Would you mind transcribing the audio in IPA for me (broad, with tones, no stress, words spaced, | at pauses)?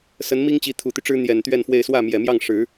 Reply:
sə˧˥nmi˥ŋt͡ɕi˧˥ t̪ʰu˨˩t̪y˦ ʈ͡ʂɻ̩˥n̪jɛ˨˩nt̪ɥɛ˥˧nfwe˥˧ɪ̯ swä˥˩mjɛ˨˩mjɑ˥˩ŋ ʂɻ̩˨˩˦